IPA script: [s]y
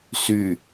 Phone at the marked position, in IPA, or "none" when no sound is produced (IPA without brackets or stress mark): s